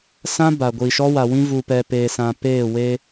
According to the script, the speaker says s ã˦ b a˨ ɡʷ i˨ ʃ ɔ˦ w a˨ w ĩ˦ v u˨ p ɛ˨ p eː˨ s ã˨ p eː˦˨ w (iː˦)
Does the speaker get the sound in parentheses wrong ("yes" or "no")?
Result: yes